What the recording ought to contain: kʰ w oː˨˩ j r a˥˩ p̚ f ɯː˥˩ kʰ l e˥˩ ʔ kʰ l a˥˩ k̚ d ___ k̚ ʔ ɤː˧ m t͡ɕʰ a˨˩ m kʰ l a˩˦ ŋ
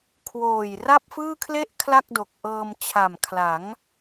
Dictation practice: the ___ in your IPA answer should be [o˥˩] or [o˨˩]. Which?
o˨˩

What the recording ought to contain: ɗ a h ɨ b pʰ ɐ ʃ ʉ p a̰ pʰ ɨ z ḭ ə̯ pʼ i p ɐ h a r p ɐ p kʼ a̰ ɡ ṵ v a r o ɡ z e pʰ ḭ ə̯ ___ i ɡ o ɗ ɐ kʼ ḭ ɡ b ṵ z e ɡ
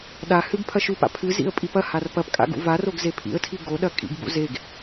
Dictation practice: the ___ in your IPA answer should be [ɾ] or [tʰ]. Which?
tʰ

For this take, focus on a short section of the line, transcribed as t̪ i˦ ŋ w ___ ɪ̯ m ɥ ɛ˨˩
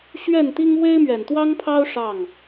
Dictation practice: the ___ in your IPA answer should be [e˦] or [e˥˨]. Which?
e˦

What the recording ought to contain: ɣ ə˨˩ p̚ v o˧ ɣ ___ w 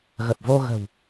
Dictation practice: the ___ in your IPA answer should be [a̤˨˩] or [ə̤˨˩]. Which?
ə̤˨˩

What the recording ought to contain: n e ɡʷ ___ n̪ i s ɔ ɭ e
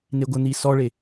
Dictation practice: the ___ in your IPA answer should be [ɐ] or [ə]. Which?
ə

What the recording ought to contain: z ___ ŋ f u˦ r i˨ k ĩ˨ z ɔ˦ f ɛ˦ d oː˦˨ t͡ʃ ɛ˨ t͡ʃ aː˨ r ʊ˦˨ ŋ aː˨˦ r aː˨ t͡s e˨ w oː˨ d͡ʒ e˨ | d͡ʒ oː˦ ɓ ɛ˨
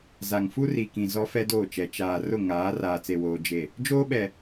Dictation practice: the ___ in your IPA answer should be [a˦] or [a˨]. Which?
a˨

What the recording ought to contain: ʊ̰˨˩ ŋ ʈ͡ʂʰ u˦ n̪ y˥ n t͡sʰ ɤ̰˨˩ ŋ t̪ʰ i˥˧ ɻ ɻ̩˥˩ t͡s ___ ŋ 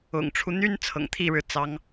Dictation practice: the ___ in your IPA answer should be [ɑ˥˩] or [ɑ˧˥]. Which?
ɑ˧˥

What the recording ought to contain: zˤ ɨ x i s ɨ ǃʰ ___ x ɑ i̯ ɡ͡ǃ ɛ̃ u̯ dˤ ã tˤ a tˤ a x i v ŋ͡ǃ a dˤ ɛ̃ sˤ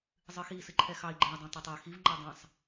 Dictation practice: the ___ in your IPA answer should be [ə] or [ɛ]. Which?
ɛ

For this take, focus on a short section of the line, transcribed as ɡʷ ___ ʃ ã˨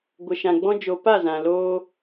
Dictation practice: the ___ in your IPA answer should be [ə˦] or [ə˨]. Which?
ə˨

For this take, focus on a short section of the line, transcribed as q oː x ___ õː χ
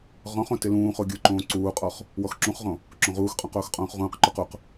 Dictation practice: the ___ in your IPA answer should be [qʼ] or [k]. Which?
qʼ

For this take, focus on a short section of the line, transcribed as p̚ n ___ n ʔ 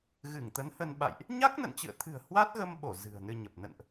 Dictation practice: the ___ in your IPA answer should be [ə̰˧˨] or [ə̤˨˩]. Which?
ə̰˧˨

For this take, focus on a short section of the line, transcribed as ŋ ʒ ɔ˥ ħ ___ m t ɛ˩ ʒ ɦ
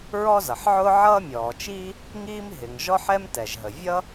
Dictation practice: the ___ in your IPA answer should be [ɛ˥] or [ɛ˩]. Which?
ɛ˥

